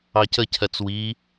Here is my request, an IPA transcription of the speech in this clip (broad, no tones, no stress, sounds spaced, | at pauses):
ɑ c ə cʰ ɜ t͡s w i